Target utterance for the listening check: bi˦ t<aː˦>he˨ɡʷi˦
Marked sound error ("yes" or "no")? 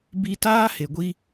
no